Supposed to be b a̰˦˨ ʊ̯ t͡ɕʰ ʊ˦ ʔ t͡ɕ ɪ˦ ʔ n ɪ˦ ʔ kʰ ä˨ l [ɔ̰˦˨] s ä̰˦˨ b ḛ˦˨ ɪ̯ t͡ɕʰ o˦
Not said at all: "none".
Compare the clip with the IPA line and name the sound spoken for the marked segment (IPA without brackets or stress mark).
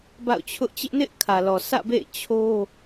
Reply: ɔ˨